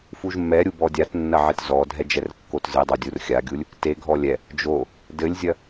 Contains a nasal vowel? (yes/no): no